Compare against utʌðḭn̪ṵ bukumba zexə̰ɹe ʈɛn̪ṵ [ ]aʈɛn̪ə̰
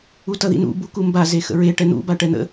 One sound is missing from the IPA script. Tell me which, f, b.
b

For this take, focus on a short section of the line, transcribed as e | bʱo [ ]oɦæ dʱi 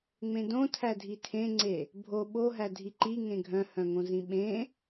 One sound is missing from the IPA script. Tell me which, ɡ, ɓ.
ɓ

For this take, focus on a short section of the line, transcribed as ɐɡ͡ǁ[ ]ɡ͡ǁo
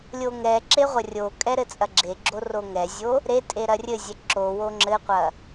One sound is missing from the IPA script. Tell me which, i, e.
e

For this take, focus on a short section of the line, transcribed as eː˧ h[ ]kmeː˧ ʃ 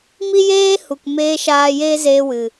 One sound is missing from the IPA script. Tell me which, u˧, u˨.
u˨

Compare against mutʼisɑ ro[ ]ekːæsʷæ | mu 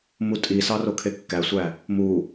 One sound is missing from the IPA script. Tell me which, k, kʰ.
kʰ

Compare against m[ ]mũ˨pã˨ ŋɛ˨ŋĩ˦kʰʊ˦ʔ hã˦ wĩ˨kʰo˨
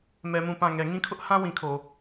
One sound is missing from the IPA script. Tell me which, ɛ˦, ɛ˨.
ɛ˨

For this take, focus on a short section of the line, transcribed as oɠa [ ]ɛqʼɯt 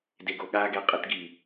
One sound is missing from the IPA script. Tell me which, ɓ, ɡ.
ɡ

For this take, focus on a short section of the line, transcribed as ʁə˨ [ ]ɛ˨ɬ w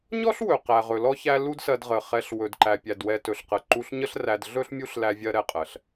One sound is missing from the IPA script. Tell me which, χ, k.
χ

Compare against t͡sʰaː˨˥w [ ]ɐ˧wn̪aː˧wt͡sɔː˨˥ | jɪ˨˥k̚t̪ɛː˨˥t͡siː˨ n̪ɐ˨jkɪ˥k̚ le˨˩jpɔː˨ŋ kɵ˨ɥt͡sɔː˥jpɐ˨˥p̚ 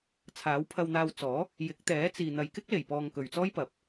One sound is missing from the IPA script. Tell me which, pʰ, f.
pʰ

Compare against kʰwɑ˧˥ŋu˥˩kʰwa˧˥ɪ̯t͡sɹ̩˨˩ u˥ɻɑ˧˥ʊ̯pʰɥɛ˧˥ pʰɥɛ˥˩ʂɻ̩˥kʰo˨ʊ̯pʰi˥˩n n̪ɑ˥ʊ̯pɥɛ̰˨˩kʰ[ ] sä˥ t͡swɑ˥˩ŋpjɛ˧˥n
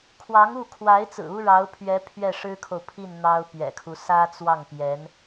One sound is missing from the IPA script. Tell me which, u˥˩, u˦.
u˦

